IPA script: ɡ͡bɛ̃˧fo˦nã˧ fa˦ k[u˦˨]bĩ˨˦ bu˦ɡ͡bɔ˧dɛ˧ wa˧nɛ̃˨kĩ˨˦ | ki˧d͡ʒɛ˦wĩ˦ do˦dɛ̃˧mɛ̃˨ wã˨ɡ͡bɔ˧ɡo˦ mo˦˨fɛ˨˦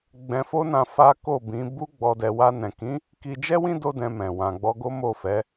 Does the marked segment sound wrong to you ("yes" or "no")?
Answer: yes